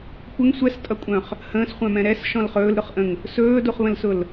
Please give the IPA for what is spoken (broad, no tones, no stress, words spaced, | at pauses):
kʷəŋ sʷɛstʼʌkʷʼœ̃χ | hə̃ːsχʷœ̃mɛ̃ ɾɛsʃɔ̃l χɵːlɾʊχʔə̃ŋ | sɵːduχβə̃lsʊl